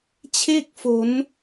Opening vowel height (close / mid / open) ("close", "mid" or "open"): mid